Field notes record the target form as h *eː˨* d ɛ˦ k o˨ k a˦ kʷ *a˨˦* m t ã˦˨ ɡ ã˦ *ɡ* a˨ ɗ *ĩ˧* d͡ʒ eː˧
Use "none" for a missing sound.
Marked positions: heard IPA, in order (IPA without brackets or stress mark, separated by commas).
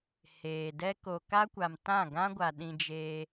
eː˨, a˨, ɡʷ, ĩ˧